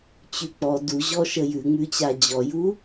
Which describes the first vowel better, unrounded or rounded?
rounded